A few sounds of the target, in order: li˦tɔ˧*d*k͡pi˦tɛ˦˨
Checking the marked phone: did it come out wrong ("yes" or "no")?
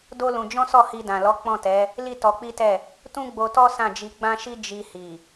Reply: yes